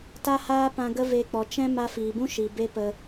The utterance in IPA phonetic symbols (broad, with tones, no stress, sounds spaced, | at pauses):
t a˦ h aː˦ p ã˧ ɡ ə˦ v e˧ k͡p ɔ˨ t͡ʃ ɛ̃˦ m a˧ f iː˨ b ũ˦ ʃ i˨ b e˦ p ə˧